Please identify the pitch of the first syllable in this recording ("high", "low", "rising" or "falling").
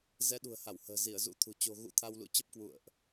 rising